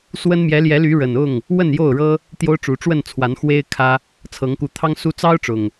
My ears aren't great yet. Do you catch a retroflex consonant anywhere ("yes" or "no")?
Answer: yes